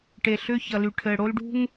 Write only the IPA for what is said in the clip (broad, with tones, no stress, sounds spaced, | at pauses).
ʈ e˨ ɬ ʏː˦ ç ʌ˨ l y˨ ʈʰ ɘː˨ ɽ o˦ l ɖ ṳ˦ ŋ